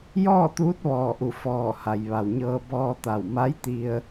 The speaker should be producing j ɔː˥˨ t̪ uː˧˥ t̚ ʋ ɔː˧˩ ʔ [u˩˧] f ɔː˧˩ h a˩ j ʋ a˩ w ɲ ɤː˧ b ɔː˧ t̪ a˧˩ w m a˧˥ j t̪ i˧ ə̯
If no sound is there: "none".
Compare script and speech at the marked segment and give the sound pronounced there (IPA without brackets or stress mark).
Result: u˧˩